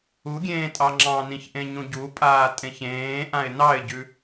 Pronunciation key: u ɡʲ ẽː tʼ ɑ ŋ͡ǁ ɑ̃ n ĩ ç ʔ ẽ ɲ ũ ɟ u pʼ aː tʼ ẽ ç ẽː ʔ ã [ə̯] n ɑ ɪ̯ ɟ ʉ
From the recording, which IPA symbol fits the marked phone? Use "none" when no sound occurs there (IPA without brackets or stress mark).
ɪ̯